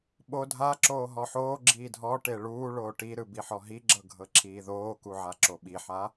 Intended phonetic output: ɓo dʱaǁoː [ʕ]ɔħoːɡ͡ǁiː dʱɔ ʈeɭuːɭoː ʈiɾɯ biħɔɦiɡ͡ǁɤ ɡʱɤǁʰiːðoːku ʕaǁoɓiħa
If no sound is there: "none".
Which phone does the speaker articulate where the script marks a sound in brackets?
ɦ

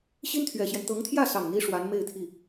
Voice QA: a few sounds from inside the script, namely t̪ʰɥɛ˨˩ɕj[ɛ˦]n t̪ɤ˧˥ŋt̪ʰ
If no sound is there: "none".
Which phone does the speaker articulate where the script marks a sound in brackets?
ɛ˦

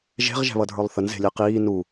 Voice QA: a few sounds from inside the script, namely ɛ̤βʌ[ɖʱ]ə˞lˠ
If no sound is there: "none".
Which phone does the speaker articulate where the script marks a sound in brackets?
dʱ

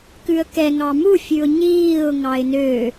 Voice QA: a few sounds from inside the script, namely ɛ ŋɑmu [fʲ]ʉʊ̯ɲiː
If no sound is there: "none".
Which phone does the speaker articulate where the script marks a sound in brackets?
fʲ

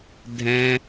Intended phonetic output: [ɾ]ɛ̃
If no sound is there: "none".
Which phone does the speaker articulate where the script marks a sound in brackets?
dʱ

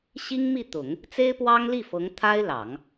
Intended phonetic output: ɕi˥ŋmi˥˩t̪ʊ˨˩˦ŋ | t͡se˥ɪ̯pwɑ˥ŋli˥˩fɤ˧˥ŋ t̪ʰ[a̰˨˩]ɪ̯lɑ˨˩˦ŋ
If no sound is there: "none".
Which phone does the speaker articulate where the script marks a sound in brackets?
a˥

